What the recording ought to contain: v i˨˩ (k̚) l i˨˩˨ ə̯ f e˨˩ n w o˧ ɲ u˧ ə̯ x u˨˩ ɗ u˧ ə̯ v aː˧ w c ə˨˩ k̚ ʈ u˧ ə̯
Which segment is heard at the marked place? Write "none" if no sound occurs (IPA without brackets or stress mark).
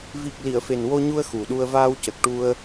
k̚